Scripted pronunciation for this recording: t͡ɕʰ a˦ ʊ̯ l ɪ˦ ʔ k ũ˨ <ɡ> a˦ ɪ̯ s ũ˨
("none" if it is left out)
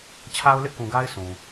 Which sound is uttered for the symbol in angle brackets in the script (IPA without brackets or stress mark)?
ɡ